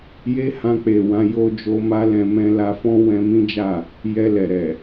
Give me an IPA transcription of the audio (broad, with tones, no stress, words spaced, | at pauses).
je˦hã˧k͡pe˨ wã˧jo˧d͡ʒo˧ma˦ lɛ̃˧mɛ̃˦ la˧fɔ̃˦ wɛ̃˧mĩ˦d͡ʒa˦˨ | jɛ˧lɛ˨ɾɛ˨